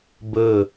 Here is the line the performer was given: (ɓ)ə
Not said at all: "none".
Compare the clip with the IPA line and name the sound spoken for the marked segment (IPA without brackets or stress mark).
b